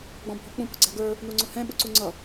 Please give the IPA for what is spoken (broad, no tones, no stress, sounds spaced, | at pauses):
ɡ͡b ɔ̃ bʱ ɔ k͡p ũ p ʊ ɡ͡ǀ æ ɡ ə˞ | n u ŋ͡ǀ ʊ h ɛ̃ ɓ ʊ ǀ u ŋ͡ǀ ʌ